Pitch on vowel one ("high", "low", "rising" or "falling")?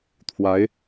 rising